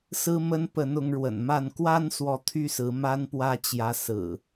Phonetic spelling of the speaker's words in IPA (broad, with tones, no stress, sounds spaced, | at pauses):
s ɹ̩˦ m ə˦ n p ə˨˦ n ʊ˨˦ ŋ ɻ w ə̰˨˩ n m a˥˨ n k w a˦ n s w ɔ˨˦ t̪ʰ y˦ s ɹ̩˨˦ m a˦ n p w ä˦ t͡ɕ j ä˨˦ s ɹ̩˨˩